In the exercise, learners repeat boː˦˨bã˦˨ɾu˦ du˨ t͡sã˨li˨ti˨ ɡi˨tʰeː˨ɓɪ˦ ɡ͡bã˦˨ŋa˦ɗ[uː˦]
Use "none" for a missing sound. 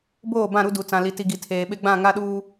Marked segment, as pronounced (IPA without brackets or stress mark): uː˦